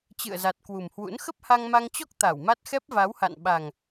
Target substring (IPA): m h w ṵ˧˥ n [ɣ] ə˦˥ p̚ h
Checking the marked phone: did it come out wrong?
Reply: yes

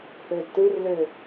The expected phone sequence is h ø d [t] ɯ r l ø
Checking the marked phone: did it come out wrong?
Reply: no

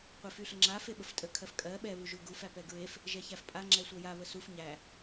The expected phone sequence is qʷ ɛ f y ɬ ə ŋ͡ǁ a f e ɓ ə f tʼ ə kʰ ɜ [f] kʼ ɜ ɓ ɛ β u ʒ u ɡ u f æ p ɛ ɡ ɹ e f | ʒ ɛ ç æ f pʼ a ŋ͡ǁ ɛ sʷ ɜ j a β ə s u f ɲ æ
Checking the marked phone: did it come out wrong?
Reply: no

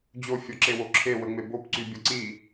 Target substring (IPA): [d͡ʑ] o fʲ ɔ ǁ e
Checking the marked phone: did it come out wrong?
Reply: no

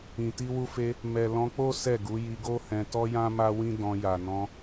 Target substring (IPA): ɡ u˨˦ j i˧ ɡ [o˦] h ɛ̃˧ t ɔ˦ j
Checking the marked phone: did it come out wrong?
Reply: no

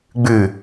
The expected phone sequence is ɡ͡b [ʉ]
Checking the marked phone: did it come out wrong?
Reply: no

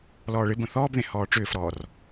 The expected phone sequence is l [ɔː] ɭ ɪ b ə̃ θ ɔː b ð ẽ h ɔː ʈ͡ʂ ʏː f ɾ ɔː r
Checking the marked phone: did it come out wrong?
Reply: no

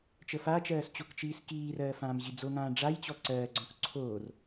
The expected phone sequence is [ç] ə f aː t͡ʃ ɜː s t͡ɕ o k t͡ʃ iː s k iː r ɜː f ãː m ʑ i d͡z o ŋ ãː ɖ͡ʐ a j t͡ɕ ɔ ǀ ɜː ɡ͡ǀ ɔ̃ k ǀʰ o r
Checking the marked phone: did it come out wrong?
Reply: yes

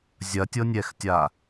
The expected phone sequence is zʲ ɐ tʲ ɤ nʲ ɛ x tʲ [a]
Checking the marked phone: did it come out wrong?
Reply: no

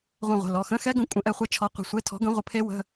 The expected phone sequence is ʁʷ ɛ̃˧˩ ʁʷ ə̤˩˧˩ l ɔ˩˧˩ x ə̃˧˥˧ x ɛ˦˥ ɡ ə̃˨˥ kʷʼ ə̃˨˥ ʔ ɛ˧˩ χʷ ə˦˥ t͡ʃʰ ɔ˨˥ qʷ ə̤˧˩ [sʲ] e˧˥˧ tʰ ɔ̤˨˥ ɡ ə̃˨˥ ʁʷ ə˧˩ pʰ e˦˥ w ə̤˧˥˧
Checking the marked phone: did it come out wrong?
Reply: yes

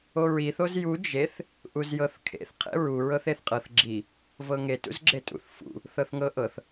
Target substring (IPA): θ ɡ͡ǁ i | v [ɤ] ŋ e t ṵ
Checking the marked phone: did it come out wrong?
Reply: no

